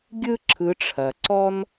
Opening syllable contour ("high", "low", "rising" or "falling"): high